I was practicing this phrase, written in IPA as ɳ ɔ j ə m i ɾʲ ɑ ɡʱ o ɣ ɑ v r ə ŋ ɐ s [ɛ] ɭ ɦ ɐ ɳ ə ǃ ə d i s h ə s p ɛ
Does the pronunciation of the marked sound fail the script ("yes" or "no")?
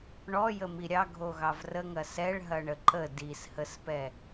no